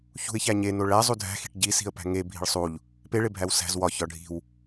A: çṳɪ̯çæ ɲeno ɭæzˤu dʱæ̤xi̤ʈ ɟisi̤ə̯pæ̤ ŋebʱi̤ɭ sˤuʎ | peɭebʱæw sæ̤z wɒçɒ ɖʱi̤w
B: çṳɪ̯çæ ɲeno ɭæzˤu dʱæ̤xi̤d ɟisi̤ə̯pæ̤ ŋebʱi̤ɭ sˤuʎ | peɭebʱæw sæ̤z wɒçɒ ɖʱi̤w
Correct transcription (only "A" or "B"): A